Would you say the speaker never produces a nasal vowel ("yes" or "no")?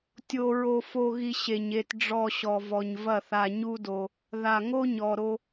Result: yes